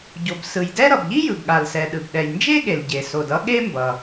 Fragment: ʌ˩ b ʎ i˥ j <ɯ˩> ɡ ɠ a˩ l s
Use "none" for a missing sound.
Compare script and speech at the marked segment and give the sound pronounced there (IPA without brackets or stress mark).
ɯ˩